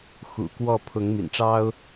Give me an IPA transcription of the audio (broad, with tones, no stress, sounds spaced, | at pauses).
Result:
x ṵ˨˩ k w ɔ˥˨ pʰ ʊ˨˦ ŋ m ḭ˨˩ n ʈ͡ʂ ɑ˦ ʊ̯